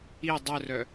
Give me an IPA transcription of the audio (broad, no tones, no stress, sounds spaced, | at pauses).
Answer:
i dˤ œ r œ